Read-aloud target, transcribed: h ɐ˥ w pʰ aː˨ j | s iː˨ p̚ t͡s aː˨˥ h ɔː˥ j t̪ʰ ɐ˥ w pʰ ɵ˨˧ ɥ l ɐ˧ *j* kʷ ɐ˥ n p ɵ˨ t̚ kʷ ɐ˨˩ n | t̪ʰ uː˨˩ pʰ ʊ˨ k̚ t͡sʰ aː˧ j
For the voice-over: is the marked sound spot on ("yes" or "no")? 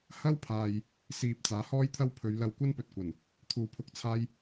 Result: no